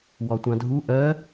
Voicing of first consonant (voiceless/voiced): voiced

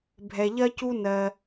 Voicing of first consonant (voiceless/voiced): voiced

